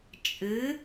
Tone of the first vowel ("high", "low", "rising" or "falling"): rising